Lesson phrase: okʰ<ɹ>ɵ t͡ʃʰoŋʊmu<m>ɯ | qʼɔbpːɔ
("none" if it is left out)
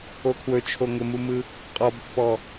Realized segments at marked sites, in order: w, m

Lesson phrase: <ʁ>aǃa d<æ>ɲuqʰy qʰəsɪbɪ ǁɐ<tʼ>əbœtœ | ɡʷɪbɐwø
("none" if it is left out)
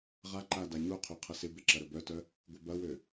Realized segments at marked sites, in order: ʁ, a, ɾ

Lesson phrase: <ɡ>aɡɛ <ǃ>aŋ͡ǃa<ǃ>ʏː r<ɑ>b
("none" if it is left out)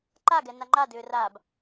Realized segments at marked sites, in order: ǃ, n, d, a

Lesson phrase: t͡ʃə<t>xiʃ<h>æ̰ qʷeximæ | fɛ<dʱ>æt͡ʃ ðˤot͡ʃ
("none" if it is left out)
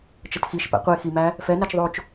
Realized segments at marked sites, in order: t, p, n

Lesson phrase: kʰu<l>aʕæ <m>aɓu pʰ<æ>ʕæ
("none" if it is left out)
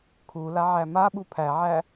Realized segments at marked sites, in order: l, m, æ

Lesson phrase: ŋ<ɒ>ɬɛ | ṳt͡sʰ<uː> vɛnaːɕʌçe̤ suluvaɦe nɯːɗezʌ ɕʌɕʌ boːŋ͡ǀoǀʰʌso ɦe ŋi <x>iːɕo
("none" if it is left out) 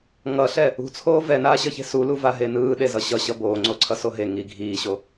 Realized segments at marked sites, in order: ʌ, oː, ɡʱ

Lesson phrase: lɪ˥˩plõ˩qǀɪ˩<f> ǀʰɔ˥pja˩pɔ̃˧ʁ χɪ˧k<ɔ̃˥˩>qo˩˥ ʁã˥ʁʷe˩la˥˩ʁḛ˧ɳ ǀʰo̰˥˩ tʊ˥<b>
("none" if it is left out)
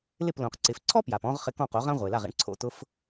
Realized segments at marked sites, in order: f, ɔ̃˥˩, f

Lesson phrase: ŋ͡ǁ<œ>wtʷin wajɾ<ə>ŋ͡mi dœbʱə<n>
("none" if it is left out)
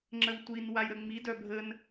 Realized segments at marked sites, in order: ə, ə, n

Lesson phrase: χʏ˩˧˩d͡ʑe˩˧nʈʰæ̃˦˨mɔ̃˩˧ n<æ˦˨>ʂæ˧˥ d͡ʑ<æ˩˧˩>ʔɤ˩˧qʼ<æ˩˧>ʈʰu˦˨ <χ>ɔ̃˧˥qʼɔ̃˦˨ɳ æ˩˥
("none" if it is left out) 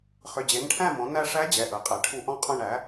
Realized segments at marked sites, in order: æ˦˨, ɛ˩˧˩, æ˩˧, ʔ

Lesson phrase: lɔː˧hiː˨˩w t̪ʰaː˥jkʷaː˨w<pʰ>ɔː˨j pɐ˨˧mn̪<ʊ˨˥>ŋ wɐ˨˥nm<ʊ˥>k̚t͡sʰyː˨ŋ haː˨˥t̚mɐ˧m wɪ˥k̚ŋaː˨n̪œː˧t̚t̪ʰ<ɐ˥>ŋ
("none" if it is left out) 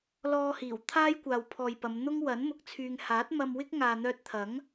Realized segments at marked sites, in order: pʰ, ʊ˥, ʊ˨, ɐ˨˥

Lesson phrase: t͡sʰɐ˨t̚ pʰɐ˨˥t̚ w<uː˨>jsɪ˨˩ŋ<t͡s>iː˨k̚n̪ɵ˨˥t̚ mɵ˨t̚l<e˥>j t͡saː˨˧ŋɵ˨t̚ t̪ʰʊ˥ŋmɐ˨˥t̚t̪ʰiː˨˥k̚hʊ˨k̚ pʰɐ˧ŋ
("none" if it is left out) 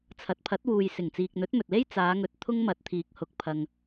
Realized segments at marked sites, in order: uː˨, t͡s, e˥

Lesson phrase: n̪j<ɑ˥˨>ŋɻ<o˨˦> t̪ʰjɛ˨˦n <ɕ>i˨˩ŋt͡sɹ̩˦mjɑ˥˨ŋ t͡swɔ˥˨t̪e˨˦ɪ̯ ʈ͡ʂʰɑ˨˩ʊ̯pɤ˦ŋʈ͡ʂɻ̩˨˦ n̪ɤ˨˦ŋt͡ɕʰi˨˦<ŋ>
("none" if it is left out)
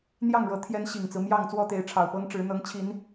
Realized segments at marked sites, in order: ɑ˥˨, ɤ˨˦, ɕ, n

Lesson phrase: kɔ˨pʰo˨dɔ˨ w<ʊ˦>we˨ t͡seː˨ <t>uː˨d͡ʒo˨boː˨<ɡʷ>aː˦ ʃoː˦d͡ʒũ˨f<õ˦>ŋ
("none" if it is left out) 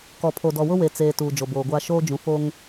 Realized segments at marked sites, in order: ʊ˦, t, ɡʷ, o˦

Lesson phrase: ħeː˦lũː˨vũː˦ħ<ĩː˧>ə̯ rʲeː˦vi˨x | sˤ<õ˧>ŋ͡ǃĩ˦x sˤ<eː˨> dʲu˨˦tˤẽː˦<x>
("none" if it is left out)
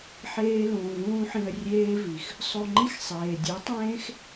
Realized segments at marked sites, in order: ĩ˧, o˧, eː˨, x

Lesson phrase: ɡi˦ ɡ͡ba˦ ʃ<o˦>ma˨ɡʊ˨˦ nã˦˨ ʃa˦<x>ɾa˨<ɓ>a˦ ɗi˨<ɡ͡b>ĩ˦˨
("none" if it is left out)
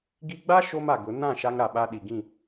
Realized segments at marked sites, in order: o˦, ŋ, ɓ, ɡ

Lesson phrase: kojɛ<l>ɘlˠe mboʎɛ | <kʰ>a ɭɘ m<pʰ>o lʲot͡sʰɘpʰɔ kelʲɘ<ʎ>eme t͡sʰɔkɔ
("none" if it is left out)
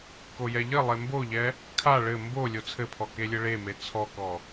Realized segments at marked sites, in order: ʎ, kʰ, b, ɭ

